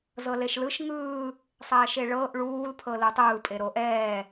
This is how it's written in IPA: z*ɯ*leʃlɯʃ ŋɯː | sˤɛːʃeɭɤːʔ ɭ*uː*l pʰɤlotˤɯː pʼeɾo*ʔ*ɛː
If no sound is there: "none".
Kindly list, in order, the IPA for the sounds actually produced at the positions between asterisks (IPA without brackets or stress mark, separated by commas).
ɤ, uː, ʔ